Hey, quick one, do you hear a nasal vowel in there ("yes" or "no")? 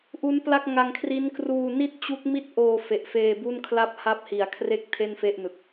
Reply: no